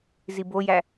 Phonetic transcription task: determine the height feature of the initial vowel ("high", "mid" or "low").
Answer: high